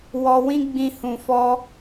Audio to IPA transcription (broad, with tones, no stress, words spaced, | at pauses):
wɔ˧wĩ˦ɡ͡bĩ˧ hũ˨fɔ˧